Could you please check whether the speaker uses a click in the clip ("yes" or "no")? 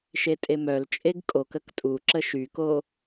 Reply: yes